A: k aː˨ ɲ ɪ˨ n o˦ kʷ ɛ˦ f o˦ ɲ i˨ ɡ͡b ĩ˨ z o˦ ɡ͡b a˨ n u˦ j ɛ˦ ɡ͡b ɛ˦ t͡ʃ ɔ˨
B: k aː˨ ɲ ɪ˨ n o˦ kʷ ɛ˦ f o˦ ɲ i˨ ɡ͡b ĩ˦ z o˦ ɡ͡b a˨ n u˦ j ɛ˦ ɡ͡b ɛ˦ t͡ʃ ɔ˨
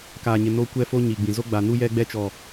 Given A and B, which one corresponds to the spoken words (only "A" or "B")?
A